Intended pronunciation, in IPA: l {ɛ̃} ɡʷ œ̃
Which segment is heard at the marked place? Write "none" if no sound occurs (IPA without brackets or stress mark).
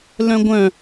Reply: œ̃